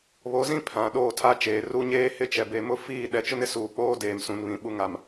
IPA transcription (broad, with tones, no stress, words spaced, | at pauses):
βo˨˦zĩ˦ pʰã˨ɗoː˦˨tʰa˦t͡ʃeː˨ ru˦ɲeː˦hɪ˦ t͡ʃɛ˨be˨mʊ˦ fiː˦˨ ɗɛ˨t͡ʃʊ˦nɪ˦ suː˨k͡poː˦ deː˨msũ˨nβĩ˨ ɓu˨ŋa˨m